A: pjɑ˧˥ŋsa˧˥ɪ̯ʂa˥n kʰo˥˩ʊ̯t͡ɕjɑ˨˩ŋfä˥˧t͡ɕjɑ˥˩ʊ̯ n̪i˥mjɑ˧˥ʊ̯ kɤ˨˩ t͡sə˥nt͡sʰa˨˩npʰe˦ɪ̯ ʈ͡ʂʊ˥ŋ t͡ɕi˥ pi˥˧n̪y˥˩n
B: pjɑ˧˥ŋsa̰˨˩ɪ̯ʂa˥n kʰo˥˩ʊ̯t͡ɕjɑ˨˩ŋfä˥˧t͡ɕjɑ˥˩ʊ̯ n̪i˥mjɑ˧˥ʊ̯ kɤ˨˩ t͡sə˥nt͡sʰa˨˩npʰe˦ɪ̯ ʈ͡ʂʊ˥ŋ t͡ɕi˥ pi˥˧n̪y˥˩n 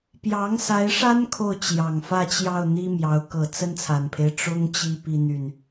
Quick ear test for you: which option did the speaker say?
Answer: A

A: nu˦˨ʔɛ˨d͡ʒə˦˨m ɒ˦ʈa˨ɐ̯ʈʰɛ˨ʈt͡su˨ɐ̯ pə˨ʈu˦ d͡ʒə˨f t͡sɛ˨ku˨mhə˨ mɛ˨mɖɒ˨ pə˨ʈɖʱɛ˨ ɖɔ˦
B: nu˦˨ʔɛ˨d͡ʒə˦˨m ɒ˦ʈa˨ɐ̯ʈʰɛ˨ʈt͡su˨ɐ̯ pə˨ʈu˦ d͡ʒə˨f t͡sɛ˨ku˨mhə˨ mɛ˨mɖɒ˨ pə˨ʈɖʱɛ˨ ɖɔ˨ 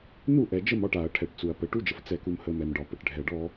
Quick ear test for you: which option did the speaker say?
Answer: A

